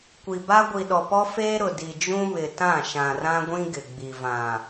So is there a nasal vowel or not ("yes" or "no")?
yes